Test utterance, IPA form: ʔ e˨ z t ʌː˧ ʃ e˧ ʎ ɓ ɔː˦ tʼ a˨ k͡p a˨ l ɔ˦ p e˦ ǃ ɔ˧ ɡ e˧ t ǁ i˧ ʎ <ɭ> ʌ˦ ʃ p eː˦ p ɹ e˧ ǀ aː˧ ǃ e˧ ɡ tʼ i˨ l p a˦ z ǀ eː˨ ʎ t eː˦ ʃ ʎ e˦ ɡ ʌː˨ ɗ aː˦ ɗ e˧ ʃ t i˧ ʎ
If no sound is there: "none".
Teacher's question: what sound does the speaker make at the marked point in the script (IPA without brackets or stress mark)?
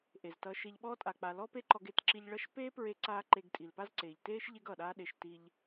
ɭ